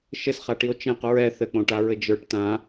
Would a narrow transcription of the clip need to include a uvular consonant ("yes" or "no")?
yes